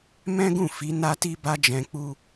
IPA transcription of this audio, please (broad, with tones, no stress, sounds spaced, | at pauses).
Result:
m ɛ̃˦ ɡ ũ˦˨ f i˨˦ n a˦ t i˦ b a˦ d͡ʒ ɛ̃˧ k͡p u˦